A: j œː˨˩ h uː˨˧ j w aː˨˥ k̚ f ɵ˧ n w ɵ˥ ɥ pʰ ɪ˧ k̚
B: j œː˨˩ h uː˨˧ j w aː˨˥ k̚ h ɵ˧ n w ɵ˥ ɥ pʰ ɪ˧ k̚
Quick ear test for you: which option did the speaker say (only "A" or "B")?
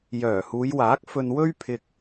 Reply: A